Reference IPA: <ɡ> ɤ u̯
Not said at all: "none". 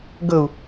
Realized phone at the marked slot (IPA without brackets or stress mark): ɡ